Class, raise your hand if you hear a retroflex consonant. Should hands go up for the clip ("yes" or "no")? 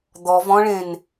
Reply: yes